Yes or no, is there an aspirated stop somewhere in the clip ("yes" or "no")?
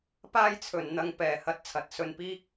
yes